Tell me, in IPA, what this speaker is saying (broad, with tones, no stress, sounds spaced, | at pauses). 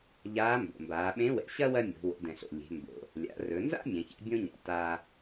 ʎ aː˧˥ m b o̰˩ m b aː˩˧ ɓ ẽ˧˥ w ɛ̰˩˧ ɕ ɐ˥ w ɐ˥ mʲ o̤˩˧ w o̰˩˧ d ɛ̃˩ ɬ o̰˩ lʲ e̤˩˧ m b o̰˩ | lʲ a̰˩˧ r ɵ˩˧ n z a̰˥ mʲ ɛ̃˩˧ ç ɛ̰˥ bʲ õ˥ ɲ a̰˩ t aː˧